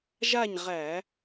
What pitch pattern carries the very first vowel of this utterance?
falling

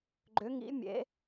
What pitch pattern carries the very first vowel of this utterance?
rising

